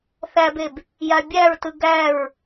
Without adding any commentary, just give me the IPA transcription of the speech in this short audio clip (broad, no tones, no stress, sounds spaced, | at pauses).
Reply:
θ æ b e b | j a bʲ æ ɹ t ɯ ɡ æ ɹ